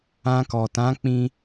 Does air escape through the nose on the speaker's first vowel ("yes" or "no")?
yes